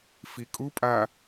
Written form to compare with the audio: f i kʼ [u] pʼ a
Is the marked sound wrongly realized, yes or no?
no